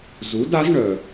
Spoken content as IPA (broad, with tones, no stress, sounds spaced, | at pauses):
z u˩˥ d a˩˥ z ɳ œ˩